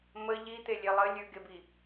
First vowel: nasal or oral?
oral